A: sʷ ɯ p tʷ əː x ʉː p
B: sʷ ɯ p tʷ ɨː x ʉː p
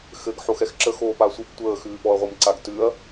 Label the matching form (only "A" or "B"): A